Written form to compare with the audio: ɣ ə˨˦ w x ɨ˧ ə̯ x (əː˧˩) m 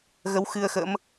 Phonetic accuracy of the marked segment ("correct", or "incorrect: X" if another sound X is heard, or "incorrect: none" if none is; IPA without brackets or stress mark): incorrect: ə̰ː˧˥